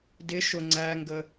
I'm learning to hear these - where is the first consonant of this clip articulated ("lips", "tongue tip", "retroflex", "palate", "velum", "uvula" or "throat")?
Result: tongue tip